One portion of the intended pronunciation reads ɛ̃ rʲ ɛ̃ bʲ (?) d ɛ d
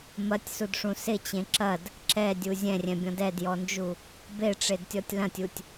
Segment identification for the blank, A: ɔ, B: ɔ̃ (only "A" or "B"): B